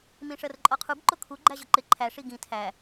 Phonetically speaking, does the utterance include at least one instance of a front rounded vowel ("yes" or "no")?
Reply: no